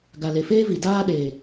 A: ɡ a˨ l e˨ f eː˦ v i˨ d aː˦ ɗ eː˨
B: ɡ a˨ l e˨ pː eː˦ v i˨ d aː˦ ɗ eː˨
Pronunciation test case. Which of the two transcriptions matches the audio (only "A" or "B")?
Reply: A